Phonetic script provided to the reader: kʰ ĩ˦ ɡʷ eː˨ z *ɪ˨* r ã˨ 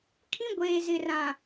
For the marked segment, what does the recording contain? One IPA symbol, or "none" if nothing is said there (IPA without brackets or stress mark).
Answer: ɪ˨